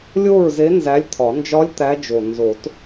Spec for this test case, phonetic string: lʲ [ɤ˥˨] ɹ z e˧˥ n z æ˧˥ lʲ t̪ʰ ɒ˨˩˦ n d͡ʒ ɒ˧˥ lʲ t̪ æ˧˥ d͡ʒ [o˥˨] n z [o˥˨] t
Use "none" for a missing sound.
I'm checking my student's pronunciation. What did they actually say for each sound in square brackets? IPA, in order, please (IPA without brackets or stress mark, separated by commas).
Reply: o˥˨, o˨˩, o˨˩˦